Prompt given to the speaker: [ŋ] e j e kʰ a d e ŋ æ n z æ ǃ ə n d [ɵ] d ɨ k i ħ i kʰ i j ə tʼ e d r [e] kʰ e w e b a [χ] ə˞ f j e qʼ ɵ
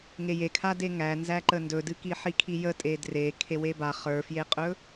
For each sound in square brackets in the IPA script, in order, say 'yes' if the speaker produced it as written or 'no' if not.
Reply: yes, yes, yes, yes

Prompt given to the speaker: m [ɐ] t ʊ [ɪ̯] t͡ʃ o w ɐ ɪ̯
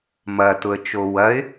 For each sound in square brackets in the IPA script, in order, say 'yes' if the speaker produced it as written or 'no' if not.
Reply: yes, no

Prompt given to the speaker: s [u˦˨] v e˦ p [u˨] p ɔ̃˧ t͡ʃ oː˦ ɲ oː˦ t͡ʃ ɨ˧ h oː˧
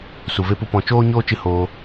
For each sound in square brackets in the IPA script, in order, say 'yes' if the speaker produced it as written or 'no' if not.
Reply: no, no

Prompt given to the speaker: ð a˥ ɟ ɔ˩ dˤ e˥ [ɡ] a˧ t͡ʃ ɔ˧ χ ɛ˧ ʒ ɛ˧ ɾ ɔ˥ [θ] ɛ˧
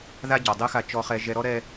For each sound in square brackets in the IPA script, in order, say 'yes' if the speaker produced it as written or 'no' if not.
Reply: no, no

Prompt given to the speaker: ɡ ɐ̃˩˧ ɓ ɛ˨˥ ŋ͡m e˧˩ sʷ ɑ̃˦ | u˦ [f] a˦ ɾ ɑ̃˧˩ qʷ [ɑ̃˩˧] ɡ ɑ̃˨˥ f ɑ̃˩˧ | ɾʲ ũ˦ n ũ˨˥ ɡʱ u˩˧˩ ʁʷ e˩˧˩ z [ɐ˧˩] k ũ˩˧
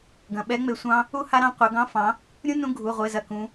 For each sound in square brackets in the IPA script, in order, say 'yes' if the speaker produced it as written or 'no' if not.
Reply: no, no, yes

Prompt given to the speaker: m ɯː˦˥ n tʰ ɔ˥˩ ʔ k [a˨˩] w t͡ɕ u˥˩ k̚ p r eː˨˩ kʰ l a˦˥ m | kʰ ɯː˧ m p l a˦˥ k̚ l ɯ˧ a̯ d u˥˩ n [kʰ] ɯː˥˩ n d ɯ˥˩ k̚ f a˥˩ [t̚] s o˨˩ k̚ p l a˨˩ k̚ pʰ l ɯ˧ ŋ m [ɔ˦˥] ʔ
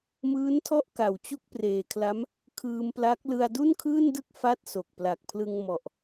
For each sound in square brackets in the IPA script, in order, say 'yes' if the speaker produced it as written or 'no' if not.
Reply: yes, yes, yes, no

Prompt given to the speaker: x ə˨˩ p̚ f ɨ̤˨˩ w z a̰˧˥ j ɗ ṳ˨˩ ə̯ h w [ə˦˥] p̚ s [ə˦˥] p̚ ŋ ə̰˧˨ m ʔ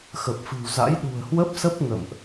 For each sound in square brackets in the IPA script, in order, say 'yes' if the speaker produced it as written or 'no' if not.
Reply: yes, yes

